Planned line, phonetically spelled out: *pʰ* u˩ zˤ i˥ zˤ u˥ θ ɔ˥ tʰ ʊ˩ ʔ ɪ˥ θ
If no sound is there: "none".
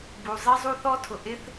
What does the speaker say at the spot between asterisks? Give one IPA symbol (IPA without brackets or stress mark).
b